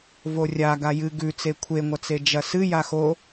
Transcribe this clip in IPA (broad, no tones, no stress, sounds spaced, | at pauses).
v o rʲ a ɡ a j ɨ ɡ ʉ t͡s e kʷʰ e ŋʷ ɐ t͡s e d͡ʒ ɐ s ɨ j a x o